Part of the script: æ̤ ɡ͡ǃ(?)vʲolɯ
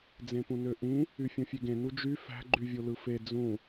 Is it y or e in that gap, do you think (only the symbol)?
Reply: y